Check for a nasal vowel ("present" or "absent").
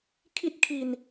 absent